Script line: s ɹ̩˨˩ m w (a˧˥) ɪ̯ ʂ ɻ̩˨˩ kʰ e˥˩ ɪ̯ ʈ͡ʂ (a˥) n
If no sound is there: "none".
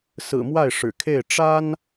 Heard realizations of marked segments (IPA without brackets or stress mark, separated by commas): a˥˩, a˥